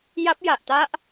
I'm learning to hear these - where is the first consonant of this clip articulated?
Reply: palate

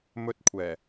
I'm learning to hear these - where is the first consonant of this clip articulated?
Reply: lips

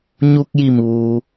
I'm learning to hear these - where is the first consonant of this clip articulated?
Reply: palate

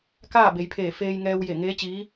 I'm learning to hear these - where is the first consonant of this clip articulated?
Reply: velum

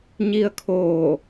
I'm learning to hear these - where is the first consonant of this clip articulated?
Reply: palate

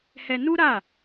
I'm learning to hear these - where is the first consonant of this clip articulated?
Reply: throat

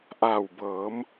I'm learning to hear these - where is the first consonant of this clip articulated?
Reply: throat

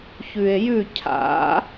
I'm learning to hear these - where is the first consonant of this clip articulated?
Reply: palate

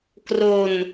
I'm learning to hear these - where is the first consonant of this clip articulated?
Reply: velum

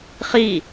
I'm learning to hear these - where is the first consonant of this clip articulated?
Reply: uvula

